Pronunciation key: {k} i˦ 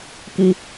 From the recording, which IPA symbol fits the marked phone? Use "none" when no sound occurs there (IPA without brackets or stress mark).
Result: k